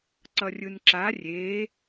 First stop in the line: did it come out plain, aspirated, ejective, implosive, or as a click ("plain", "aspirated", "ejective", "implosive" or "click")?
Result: click